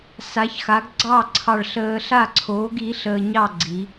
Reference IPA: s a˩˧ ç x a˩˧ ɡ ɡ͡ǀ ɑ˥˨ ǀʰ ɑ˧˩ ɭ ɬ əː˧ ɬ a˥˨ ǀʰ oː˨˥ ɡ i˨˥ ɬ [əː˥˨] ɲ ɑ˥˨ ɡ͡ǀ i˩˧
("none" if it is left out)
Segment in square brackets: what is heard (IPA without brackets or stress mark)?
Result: əː˧